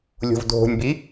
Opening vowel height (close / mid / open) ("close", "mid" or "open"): mid